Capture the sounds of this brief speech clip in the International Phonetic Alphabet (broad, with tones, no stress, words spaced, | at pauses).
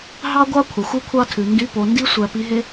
ɦɑ˥ɡʷɑ˥ kʷʰɑ˩xʷʉ˥kʷʰɑ˥tʰʉ˩ ndy˧˥po˩˧ndi˥ sʷæ˧pi˧˥ɦe˥